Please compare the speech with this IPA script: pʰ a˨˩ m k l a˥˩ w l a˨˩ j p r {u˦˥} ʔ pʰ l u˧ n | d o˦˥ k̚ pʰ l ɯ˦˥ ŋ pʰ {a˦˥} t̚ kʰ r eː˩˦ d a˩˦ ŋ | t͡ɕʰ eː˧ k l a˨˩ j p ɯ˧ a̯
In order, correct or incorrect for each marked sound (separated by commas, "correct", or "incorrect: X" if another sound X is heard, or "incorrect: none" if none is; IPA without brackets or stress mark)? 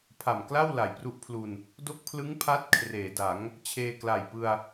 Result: correct, correct